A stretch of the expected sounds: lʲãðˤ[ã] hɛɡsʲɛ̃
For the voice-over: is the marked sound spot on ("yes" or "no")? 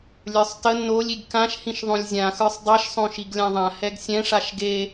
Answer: yes